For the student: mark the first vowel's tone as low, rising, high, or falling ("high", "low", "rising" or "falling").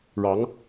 rising